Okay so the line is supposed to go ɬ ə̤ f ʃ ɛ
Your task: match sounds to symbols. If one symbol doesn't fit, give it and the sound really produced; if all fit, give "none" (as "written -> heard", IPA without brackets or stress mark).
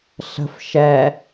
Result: none